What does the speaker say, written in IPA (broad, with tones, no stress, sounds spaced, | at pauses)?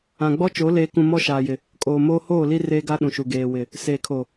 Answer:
ã˨ ɡ͡b ɔ˦ t͡ʃ o˨˦ l eː˨ k ũ˨ m ɔ˦ ʃ aː˨ j ɪ˨ | kʼ oː˨ m oː˦ h oː˦˨ l i˦ r eː˦ ɡ a˦ ɗ ũ˨ ʃ u˨ ɡ eː˨ w ɪ˨ | s eː˨ kʰ o˨